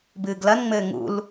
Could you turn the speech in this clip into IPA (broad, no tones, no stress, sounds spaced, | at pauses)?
b ɨː ɡ l ɐ n ŋ͡m ɘː ŋ ṵ l